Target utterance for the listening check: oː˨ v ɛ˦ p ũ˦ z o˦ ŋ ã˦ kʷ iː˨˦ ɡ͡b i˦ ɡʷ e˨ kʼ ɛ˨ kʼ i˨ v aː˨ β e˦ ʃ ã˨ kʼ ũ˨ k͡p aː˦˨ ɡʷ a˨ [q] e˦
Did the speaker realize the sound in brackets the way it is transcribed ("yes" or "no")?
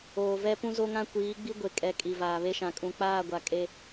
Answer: no